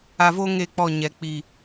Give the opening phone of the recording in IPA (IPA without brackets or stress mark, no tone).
a